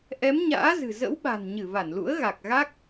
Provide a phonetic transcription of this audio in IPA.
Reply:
ʔ ɛ˨˦ m ɲ a̰ː˧˥ z ɨ̤˨˩ z ə̰˧˥ w ɓ a̤˨˩ n ɲ ɨ˧˩ v a˧˩ n l ṵ˧˥ ə̯ ɣ a˨˩ k̚ ɣ a˦˥ k̚

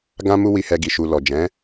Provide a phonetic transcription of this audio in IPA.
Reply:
ɡ ã˧ m u˧ w i˧ h ɛ˧ ɡ i˨ ʃ u˨ l ɔ˨ d͡ʒ ɛ̃˨˦

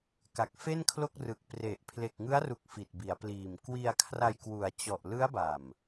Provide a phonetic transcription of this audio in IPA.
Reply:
k a˨˩ k̚ f e˥˩ n kʰ l o˥˩ k̚ r ɯ˨˩ k̚ p r e˨˩ ʔ pʰ l e˨˩ k̚ ŋ ɯ˦˥ a̯ r u˨˩ k̚ f i˨˩ t̚ b i˩˦ a̯ p l iː˨˩ m k w i˧ a̯ kʰ r a˧ j k w u˩˦ a̯ t͡ɕ ɔ˨˩ ʔ l ɯ˦˥ a̯ b a˨˩ m

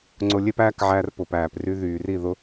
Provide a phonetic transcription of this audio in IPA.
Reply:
ŋ͡ǀ ʊ˧ lʲ e˦ p æː˦ k ʕ æ˦ r p ʊ˨ p æː˨ p r y˧ ð yː˨ r i˦˨ ð ʊ˦

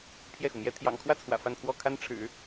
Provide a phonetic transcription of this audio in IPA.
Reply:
pʰ j ɛ˥˩ x u˩ m j ɛ˥ t̪ʰ j ɑ̰˨˩ ŋ kʰ w ä˥˩ t͡sʰ w ä̰˨˩ f a˥˧ n pʰ w ɔ˥˩ kʰ a˥ n ʈ͡ʂʰ ɻ̩˨˩˦

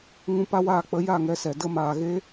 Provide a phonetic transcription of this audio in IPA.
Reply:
ŋ ũ˧ p a˦ w aː˦˨ k͡p ə˨˦ j a˦˨ ŋ ɛ˧ s ɛ˨ d ə˧ m aː˨ ɣ eː˧

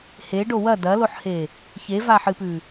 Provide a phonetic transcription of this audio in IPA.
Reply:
h e ɖ o w ɐ d ɐ l o ħ h e | ç e v a ħ ɨ p ʉ

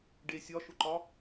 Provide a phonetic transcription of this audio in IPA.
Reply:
ɖ e sʲ ɒ ʃ ʊ ǃ ɒ

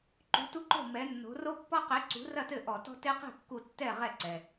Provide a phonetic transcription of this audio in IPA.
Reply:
ǃ ṳ˨˥ t u˦ ǃ o̤˥˩ m ɛ˨˥ nː o̤˨˥ r o˦ pː ɔ˦ q e˨˥ ǀ ṳ˨˥ r ɐ˥˩ t ɘ˥˩ ʔ ɔ˧˩˧ t ɔ̤˦ t e˦ q e̤˥˩ kː u˧˩˧ tː ɛ˥˩ ʁ ɛ˥˩ ǀ ɛ˩

